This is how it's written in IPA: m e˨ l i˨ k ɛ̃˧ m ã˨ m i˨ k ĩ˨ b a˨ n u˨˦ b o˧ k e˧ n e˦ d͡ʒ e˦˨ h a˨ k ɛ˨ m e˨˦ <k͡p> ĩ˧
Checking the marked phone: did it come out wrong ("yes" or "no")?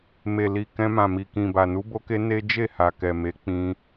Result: no